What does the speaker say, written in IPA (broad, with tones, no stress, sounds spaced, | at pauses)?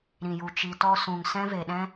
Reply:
ɾ ĩ˨ j u˨ t͡ʃ i˨ t ɔ˧ s ũ˨ ŋ s ɛ̃˦ v e˨ ɗ ɛ̃˦